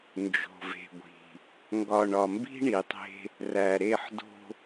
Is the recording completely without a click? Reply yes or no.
yes